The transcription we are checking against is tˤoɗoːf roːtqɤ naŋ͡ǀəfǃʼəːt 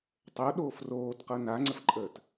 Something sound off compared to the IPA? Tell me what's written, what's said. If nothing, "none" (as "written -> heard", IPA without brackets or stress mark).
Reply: none